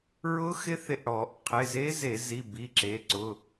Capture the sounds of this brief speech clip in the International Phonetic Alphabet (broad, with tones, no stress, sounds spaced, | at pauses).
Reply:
ɹ ʊ˦˥ x ɪ˦˥ θ ɪ˧˩ ʔ ɽ ɔ˧˩˧ ʔ qʰ ɪ˩˧˩ z e˦˥ z e˧˩˧ z i˩˧˩ b i˩˧˩ ǁ e˩˧˩ ǀ ʊ˩˧˩